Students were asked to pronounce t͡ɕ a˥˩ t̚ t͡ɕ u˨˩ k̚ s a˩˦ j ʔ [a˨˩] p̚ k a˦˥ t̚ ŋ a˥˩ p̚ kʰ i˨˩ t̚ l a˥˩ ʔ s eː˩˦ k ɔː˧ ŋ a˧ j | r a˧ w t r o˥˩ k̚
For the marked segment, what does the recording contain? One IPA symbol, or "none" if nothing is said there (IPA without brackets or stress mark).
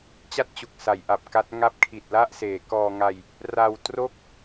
a˨˩